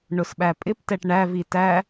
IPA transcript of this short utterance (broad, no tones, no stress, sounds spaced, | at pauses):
ɳ ʊ s ɓ æ pʼ ɪ p t ɛ ʈ ɳ æ v i t æ